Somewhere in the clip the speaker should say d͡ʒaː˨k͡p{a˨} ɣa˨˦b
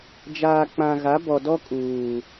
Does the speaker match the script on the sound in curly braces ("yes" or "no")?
no